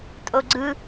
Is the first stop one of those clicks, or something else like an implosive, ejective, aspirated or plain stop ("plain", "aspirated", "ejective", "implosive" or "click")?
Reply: ejective